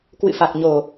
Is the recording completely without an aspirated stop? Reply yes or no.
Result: yes